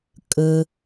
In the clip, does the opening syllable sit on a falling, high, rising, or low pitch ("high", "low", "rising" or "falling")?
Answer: high